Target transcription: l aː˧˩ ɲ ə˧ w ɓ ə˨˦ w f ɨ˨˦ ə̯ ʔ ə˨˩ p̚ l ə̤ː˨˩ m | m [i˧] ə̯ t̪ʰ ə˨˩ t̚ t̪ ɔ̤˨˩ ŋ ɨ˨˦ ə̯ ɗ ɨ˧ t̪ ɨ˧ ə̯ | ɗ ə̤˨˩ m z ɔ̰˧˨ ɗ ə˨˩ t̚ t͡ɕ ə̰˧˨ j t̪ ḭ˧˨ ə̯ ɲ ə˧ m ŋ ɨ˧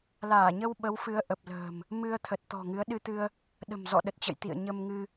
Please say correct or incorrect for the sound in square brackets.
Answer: incorrect: ɨ˧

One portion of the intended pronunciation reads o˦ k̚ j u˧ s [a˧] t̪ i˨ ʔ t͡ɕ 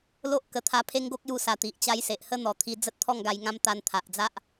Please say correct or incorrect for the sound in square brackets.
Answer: incorrect: a˨˩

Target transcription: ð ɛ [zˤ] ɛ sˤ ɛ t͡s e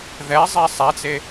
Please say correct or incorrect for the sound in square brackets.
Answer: correct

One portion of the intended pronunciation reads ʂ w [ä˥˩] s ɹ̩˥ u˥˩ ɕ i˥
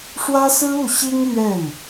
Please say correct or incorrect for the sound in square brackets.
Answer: incorrect: ä˥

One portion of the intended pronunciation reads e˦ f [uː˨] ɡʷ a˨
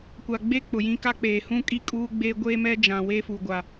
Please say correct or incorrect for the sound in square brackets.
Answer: incorrect: u˨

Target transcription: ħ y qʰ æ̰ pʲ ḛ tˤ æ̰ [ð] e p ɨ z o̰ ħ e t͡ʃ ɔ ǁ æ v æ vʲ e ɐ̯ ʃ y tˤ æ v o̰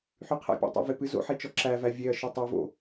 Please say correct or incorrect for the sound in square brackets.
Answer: incorrect: v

